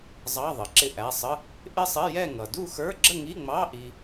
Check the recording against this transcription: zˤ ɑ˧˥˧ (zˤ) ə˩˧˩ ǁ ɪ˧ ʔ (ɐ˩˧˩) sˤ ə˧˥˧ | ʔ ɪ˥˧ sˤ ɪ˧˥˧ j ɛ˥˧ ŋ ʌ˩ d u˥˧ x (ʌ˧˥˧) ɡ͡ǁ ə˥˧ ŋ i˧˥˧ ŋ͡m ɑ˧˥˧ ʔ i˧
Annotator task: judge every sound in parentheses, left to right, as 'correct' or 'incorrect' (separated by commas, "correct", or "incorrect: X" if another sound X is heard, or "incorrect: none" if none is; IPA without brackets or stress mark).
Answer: incorrect: ðˤ, incorrect: æ˩˧˩, incorrect: ə˞˧˥˧